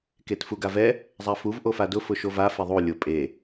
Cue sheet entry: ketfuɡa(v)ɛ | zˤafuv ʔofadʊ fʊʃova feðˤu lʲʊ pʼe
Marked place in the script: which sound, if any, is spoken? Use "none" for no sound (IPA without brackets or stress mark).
v